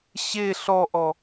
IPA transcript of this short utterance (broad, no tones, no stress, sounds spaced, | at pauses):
ɕ e ɬ ɔ ʔ ɔ